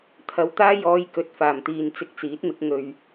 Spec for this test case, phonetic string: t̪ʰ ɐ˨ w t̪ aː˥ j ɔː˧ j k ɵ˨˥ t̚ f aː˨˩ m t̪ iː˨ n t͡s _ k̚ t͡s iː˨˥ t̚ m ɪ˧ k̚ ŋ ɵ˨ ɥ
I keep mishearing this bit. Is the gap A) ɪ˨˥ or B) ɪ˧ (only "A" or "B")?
B